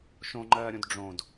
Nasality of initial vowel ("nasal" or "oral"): nasal